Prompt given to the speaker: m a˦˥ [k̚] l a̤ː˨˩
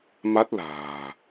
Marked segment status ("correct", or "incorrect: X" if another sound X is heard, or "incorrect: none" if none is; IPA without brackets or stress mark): incorrect: t̚